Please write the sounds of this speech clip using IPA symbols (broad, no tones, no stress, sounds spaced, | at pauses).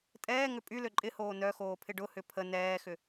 tʼ ɛː ŋ ʏ pʼ y l ø ǃʼ ɪ h oː n œ x oː pʰ ɪ ɖ ʊ h ʏ pʰ ə n ɛː x ʏ